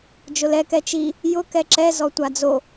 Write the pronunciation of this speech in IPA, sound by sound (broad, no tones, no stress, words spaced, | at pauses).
d͡ʒʊlɛ kɛt͡ʃi | jʊ kɛǁɛzɔ tʷad͡zo